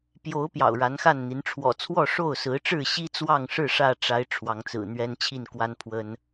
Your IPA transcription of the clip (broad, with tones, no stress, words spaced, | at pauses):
pjo˨˦ʊ̯ pjɑ̰˨˩ʊ̯ɻa˨˦nxa˥˨nn̪i˨˦n ʈ͡ʂʰwɔ̰˨˩t͡sʰwɔ˥˨ ʂo˥˨ʊ̯sɹ̩˨˦ʈ͡ʂɻ̩˥˨ ɕi˦t͡swɑ˥˨ŋʂɻ̩˥˨ ʂä˥˨ʈ͡ʂa˨˦ɪ̯ ʈ͡ʂʰwɑ˨˦ŋt͡sɹ̩˨˩ n̪ɥɛ˦nt͡ɕʰi˥˨nkwa˦n pʰwə˦n